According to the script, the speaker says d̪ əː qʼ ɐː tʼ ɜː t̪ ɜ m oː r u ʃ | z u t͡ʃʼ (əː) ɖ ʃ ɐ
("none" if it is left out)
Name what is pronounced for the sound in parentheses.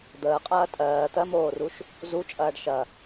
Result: ɐː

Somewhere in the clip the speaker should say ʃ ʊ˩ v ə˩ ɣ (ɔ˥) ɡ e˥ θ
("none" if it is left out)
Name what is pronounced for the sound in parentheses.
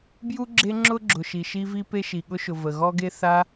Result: ɔ˥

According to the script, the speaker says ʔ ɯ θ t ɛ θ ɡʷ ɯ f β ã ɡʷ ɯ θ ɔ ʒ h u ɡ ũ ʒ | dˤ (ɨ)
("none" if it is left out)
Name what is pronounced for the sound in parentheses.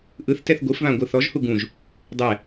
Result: ɛ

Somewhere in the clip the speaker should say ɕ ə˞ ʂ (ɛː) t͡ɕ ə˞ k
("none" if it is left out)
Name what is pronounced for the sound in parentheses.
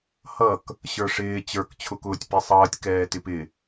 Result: ɪː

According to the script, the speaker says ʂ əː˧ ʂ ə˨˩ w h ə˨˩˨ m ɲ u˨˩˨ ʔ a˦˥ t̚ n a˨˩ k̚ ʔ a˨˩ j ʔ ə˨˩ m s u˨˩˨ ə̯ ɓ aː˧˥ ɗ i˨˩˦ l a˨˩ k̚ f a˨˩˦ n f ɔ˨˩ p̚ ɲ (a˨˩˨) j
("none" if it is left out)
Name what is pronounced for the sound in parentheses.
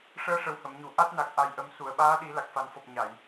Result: a˨˩˨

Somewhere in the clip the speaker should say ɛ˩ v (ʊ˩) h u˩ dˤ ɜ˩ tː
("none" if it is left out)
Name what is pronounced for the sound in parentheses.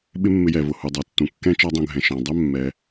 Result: ʊ˩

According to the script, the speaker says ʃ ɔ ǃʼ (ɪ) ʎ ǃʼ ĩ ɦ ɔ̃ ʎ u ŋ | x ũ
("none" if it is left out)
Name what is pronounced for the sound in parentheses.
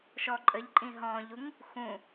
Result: ə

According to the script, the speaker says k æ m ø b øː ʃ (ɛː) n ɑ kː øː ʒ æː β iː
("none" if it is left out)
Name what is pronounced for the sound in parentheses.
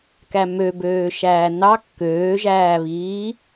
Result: æː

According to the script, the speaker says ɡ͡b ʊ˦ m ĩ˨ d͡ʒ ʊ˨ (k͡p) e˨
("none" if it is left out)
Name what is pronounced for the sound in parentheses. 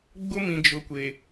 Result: kʷ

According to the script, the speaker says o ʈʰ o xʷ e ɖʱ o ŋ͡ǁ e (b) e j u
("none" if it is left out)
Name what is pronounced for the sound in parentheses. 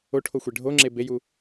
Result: b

